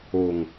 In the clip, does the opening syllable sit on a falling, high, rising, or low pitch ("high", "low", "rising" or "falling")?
low